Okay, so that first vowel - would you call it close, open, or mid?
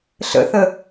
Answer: mid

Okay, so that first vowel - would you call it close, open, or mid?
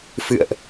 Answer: close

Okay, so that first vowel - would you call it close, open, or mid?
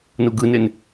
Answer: close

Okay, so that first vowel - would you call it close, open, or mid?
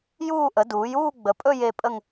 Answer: close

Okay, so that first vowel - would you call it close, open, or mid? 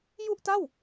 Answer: close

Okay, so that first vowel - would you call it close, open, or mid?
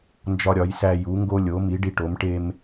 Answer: open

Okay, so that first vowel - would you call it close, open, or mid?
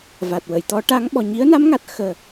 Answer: open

